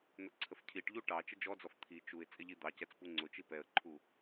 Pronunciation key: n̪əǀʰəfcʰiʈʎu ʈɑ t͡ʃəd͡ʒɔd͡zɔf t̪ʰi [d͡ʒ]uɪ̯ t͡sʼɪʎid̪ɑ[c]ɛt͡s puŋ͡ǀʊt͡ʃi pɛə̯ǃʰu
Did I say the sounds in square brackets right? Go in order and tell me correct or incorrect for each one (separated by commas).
incorrect, correct